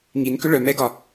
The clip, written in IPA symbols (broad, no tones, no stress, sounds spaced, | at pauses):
ŋ i n k ʏ ɭ œ m ɛ ɡ ɒ